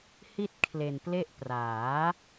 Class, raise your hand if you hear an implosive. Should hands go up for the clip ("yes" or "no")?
no